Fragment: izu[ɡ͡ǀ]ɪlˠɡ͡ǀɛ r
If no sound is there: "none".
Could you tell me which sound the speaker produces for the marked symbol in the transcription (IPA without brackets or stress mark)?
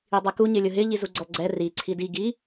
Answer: ɡ͡ǀ